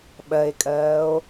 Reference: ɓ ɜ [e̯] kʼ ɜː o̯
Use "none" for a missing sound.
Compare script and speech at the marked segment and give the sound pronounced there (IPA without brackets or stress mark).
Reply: e̯